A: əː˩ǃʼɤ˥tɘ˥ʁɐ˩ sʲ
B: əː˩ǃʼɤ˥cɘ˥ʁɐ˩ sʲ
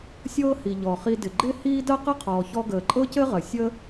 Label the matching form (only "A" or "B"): B